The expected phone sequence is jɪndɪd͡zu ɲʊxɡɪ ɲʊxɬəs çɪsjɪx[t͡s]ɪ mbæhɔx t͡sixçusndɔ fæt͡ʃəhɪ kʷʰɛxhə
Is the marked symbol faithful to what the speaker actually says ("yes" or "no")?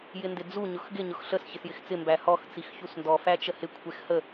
yes